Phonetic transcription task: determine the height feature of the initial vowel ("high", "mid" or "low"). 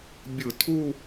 high